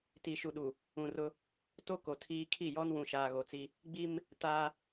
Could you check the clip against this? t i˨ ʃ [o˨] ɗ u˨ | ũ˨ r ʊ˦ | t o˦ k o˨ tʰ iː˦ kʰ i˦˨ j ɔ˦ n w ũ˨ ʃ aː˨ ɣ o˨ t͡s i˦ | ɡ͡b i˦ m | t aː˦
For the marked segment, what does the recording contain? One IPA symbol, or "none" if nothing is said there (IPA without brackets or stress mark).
u˨